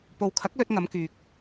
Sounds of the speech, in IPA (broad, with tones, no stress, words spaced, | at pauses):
po˨wkʰɐ˨˥k̚lɵ˧t̚ ŋɐ˨˧mkyː˨k̚